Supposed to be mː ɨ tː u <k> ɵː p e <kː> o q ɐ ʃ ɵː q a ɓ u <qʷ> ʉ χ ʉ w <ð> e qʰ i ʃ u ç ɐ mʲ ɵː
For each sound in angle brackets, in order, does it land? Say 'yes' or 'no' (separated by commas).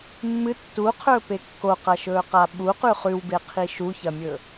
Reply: no, yes, no, no